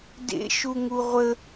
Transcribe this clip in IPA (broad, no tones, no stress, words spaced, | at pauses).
dḛ ʃuŋuʁʷə